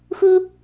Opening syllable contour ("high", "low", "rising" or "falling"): high